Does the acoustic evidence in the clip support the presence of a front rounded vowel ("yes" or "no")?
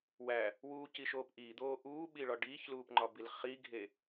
no